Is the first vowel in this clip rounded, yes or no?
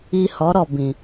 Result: no